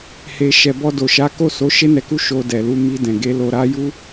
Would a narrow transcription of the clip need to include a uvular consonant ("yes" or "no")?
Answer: no